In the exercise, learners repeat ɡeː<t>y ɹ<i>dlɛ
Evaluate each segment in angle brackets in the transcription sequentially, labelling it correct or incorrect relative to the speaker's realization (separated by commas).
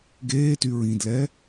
correct, incorrect